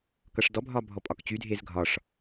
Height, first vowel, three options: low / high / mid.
mid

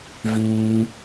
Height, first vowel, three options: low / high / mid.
high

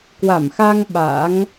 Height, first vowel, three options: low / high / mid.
low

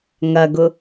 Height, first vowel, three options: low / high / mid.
low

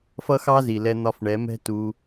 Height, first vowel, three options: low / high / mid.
mid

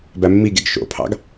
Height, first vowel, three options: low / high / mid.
low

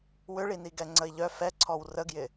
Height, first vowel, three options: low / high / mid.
high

